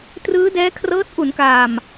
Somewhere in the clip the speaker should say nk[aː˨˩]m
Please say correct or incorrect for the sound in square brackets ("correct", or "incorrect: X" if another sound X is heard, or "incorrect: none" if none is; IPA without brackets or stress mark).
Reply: correct